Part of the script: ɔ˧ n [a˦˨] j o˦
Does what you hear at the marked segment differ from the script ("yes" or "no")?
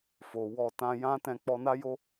yes